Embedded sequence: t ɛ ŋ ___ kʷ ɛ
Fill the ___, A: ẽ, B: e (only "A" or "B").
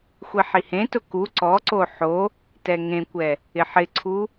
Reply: A